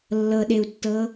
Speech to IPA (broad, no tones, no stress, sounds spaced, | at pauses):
lː ɤ ɗ e u̯ tː ɤ